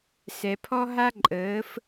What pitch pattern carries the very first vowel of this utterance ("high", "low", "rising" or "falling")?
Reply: low